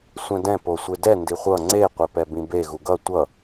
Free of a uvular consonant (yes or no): no